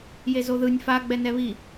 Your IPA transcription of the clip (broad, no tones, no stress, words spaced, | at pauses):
jezoðɯnʲ fa ɡ͡bɛnɛβi